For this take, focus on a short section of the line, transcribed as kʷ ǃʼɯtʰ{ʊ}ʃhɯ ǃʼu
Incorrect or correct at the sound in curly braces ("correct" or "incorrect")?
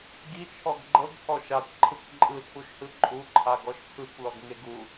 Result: incorrect